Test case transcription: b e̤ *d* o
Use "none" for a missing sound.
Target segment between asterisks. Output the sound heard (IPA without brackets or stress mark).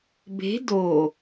d